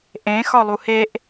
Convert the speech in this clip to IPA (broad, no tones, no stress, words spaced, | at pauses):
ʔẽ xɒlˠuheʔ